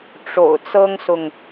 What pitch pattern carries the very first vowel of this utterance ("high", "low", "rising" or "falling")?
low